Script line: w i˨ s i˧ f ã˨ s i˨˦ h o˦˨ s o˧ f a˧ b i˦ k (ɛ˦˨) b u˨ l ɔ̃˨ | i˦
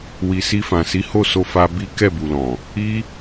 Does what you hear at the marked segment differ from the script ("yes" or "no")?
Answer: no